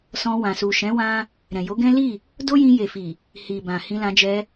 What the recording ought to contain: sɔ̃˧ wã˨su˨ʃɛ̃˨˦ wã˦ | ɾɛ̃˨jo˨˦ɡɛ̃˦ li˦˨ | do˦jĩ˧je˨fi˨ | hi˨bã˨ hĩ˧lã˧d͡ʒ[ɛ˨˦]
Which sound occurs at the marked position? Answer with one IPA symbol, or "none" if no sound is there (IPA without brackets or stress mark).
ɛ˧